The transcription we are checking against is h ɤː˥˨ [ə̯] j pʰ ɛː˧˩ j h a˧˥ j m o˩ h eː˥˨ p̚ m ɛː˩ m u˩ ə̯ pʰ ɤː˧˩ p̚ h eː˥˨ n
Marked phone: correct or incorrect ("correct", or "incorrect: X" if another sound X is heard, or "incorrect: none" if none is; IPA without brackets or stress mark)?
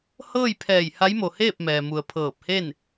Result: incorrect: none